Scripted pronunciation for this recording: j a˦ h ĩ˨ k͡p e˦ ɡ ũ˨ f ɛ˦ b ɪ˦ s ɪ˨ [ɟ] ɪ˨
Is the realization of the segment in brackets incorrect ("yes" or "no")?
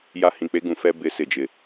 yes